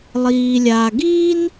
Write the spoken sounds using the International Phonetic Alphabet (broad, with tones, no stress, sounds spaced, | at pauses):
lˠ iː˩ lʲ aː˩ ɡ iː˥ n